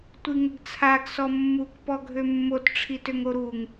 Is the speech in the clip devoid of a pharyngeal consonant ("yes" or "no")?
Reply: yes